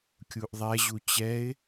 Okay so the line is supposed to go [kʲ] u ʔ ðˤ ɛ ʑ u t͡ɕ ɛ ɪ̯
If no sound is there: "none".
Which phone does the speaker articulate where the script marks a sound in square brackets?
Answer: kʲ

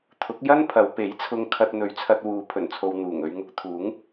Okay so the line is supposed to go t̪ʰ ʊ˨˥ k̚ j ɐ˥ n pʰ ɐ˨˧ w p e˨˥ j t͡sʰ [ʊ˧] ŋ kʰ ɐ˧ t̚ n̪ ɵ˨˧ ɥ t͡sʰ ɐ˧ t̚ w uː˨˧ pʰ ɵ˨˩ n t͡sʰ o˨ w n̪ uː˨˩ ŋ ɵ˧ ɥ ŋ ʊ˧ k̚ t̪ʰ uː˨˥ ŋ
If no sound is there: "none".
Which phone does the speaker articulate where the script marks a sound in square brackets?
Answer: ʊ˧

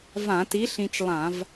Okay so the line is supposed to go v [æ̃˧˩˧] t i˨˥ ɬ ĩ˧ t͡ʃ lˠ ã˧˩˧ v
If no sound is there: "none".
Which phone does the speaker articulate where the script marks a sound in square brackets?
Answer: ã˧˩˧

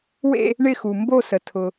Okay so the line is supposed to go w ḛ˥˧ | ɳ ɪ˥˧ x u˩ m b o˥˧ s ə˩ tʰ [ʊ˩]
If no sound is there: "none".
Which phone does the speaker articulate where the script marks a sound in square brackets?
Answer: ʊ˩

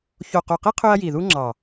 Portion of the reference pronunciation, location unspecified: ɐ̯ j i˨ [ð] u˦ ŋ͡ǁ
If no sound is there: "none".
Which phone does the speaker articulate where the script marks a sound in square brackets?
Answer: ð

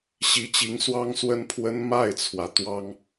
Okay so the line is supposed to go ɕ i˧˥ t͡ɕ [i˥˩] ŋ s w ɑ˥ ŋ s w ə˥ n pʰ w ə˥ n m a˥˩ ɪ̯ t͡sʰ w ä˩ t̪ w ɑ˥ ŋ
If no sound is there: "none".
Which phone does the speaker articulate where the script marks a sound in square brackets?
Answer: i˧˥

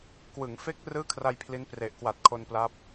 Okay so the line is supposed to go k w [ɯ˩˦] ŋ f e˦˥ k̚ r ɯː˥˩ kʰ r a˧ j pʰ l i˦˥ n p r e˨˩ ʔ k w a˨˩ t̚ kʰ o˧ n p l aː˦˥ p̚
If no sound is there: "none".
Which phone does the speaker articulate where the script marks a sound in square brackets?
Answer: ɯ˩˦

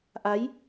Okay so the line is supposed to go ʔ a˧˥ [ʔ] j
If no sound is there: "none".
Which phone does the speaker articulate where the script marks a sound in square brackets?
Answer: none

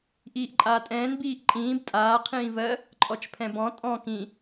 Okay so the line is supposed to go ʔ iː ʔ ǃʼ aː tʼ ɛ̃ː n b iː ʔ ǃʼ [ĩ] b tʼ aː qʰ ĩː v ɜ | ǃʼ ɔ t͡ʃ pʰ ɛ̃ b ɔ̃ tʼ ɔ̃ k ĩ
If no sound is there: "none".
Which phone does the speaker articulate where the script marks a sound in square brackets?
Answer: ĩː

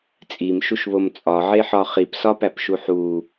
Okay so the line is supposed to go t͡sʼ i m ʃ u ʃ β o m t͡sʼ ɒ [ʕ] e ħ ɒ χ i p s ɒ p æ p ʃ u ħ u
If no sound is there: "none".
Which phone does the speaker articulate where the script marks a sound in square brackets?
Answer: ʕ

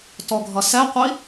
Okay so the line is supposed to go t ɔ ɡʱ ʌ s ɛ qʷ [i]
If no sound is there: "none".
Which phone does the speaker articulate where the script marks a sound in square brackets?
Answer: i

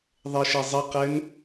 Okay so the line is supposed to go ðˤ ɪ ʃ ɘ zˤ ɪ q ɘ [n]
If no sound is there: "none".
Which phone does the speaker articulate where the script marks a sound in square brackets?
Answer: n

